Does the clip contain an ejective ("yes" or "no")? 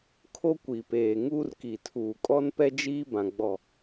yes